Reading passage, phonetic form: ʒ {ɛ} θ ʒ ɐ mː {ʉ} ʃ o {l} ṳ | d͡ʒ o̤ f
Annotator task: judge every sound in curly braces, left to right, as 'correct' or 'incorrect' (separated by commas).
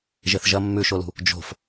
incorrect, correct, correct